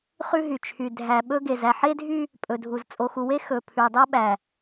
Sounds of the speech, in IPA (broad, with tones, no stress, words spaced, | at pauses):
χʉ˦ɦy˨t͡ʃʰy˨ dʱæ˨ ɓɵ˦ ɡe˨zæ˨ħe˦dʱy˦ | pʼɵ˨dʱu˨z t͡sʼo˨xu˨we˦ xɵ˨ pʰʉ˨dˤo˦ɓæ˨